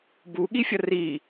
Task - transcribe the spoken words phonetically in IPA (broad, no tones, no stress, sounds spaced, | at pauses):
b u ɠ i fʲ ʌ r i